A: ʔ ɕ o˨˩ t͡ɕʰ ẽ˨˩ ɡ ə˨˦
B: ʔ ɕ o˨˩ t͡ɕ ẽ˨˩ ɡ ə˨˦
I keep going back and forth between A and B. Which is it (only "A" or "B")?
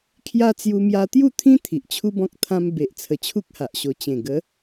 B